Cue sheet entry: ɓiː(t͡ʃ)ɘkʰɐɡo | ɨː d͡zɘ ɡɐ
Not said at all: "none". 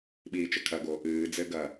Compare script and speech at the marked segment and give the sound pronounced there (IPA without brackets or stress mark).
t͡ʃ